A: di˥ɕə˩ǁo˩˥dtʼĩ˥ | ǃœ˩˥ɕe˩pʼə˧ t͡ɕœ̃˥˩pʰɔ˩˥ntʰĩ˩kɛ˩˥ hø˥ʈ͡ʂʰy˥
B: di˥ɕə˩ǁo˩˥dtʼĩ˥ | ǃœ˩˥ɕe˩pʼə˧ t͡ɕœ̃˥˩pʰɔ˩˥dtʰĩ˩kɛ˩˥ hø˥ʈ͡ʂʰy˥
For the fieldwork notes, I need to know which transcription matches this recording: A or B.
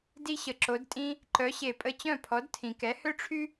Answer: B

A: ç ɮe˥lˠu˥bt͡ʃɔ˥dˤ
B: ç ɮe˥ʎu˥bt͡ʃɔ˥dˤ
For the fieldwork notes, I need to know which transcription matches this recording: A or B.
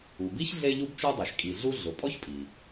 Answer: B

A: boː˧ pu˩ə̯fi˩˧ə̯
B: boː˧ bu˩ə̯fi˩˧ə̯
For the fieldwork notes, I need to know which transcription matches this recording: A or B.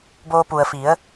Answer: A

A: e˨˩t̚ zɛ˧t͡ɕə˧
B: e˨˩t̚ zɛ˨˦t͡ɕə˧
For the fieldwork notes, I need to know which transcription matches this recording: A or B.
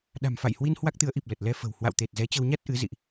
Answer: B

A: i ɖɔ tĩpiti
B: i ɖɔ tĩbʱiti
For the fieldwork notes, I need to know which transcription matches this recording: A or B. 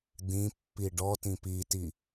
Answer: A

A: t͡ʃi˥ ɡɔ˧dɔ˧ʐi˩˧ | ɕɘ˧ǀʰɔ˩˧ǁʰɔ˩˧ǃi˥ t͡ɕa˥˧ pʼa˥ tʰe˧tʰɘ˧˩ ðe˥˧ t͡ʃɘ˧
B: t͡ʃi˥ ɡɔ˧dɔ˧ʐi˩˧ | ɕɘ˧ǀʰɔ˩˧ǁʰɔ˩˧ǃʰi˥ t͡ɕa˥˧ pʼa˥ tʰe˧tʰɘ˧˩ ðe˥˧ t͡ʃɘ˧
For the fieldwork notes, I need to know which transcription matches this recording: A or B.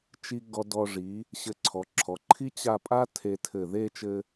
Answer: B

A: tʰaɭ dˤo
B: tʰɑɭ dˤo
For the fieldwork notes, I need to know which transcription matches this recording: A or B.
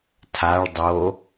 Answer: A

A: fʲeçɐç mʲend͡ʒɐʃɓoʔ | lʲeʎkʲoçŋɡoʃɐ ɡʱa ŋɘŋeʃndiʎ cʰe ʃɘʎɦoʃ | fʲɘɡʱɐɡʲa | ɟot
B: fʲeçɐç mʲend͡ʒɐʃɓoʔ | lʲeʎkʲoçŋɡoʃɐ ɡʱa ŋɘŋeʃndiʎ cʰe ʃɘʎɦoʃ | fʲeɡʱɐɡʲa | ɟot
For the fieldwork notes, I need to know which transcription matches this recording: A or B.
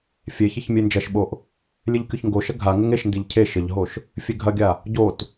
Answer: B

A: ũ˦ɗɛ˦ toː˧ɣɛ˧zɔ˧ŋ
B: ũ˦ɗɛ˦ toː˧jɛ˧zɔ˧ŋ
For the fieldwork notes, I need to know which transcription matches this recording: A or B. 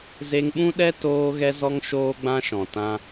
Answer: A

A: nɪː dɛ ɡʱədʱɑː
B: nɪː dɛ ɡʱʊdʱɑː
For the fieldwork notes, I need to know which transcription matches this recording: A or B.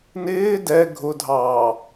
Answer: B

